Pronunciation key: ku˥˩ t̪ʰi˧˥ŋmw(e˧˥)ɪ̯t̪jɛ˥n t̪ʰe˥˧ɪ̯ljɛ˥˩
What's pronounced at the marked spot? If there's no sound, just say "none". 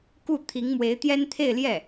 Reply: e˧˥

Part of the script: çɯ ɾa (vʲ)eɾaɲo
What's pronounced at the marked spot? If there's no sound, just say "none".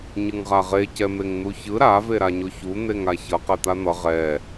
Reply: v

